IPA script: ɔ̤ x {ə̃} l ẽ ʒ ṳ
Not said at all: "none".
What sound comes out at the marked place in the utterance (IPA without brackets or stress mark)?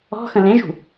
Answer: ə̃